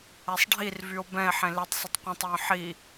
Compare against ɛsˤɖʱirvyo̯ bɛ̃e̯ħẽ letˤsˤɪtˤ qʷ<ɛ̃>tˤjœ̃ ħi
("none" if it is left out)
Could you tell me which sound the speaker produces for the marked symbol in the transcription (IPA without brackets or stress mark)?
ɛ̃